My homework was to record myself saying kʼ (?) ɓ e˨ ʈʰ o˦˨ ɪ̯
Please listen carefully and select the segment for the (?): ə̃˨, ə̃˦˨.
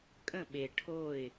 ə̃˦˨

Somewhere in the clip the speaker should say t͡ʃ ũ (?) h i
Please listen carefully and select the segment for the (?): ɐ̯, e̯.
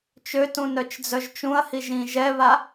ɐ̯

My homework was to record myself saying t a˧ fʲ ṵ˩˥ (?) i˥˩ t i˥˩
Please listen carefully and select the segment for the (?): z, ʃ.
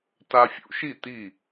ʃ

